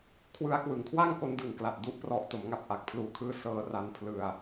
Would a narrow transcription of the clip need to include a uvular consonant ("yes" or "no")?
no